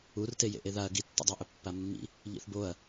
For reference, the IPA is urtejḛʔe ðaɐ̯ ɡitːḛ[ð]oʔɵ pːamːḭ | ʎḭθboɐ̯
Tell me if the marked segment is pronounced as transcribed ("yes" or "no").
no